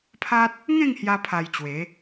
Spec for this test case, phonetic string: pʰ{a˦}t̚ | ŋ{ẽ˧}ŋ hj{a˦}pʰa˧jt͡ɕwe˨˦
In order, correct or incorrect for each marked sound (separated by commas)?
correct, incorrect, correct